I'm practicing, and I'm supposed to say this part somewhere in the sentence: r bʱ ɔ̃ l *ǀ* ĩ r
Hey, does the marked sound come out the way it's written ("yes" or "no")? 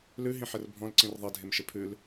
yes